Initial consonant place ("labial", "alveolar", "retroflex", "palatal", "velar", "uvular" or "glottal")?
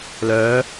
alveolar